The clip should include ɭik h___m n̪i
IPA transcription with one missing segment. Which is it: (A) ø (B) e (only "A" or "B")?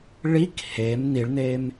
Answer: B